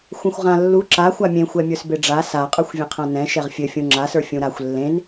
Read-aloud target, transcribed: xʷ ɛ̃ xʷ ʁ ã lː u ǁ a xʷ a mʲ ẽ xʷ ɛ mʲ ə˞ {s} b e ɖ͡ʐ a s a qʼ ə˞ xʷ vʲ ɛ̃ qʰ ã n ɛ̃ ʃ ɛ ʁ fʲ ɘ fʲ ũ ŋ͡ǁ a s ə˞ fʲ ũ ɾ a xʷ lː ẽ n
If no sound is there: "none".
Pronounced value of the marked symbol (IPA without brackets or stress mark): s